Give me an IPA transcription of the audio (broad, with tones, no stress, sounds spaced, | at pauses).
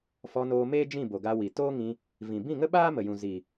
f ɔ˧ n oː˧ m eː˦ d͡ʒ ĩ˦˨ b o˨ ɡ a˧ w i˨ t oː˦ ŋ ĩ˧ | v ĩ˨ b ĩ˦˨ ŋ ə˦ ɓ aː˦ m ə˨ j ũ˨ z i˨